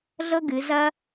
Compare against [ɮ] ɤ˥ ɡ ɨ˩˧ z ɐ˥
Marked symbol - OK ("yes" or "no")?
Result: yes